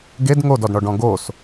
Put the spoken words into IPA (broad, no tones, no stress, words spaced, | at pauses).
ɡed ŋodɔdɳɔɖɔ̃ ɡos